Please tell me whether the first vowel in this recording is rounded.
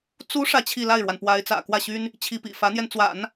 yes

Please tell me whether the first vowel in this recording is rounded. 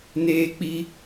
no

